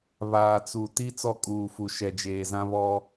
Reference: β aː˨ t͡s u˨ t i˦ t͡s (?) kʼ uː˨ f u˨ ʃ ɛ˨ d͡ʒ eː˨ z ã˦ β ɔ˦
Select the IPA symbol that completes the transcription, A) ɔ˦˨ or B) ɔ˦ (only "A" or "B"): A